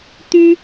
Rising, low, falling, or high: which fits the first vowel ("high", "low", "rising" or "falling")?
high